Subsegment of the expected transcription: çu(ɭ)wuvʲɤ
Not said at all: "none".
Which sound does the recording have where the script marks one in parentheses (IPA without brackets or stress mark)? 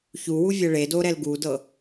none